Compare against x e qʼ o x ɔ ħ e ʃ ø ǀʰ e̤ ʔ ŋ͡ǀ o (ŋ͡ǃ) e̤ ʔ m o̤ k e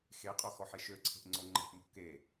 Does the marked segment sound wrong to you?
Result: no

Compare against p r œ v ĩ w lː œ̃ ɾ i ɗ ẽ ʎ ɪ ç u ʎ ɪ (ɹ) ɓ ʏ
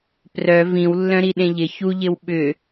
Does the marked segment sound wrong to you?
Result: yes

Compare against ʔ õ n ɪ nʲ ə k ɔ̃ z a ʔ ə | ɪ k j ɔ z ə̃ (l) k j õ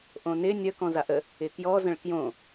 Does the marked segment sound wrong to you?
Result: yes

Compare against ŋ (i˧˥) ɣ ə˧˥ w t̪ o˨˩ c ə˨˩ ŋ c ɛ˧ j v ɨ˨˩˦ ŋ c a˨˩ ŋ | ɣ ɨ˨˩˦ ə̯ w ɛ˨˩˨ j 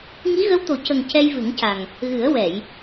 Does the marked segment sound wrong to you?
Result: no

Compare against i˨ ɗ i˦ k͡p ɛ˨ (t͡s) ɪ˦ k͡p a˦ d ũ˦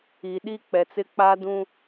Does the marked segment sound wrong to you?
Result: no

